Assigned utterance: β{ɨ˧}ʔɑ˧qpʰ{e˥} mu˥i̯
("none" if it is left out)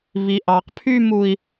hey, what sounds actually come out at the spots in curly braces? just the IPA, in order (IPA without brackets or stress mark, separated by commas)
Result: i˧, y˥